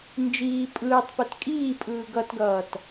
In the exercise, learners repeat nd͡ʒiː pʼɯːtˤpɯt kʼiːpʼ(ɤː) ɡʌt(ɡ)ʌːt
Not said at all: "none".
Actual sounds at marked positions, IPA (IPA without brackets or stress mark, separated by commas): ɯː, ɡ